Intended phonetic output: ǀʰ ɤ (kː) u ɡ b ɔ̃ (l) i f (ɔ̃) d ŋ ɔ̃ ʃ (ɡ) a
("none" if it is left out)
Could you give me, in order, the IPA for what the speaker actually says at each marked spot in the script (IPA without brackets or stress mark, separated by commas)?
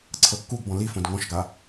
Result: kː, l, õ, ɡ